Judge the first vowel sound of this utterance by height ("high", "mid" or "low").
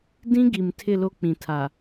high